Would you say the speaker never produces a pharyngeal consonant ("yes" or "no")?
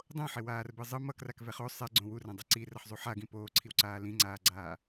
no